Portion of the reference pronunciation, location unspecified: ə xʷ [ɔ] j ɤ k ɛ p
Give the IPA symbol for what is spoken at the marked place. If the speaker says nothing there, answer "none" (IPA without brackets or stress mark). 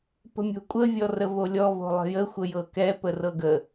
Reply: ə